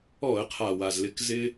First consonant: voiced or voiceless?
voiceless